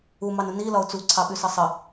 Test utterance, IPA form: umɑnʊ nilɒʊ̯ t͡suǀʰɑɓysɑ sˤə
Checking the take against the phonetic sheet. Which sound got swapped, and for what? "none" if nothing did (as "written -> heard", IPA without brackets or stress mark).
none